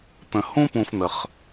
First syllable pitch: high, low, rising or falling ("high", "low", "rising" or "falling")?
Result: low